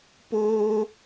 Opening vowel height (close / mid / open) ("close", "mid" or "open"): mid